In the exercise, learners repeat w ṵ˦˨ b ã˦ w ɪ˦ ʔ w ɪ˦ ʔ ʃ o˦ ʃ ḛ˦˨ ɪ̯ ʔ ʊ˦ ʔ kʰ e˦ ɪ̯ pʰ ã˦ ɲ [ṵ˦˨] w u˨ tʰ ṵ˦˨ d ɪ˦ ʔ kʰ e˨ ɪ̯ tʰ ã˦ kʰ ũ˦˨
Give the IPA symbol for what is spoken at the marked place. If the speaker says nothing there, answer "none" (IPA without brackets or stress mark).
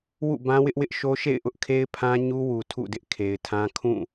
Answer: u˦